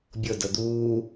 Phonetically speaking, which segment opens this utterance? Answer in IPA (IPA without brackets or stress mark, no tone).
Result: bʲ